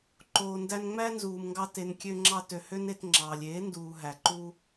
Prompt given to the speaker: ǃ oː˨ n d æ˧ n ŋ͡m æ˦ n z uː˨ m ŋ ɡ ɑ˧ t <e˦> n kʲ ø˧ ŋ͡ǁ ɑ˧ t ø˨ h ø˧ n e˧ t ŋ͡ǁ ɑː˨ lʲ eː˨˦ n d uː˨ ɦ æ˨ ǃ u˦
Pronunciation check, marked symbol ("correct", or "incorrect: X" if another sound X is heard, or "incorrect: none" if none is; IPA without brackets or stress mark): incorrect: e˨